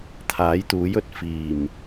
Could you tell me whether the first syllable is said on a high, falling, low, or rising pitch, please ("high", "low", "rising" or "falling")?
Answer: rising